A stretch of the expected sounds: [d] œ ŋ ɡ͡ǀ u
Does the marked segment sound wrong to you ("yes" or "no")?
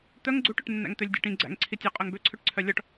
yes